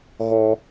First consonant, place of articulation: velar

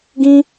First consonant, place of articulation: velar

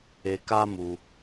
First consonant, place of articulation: velar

